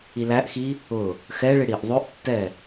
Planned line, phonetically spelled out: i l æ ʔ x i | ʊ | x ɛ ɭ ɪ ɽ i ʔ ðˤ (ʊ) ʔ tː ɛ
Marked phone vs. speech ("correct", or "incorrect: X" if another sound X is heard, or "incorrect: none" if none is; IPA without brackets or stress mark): correct